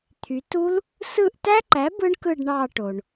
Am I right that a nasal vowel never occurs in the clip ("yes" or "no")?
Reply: yes